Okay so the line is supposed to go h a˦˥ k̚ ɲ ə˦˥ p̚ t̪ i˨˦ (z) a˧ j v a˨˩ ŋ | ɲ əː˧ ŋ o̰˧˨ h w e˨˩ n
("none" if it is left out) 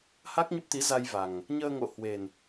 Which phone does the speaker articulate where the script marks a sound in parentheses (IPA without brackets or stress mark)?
z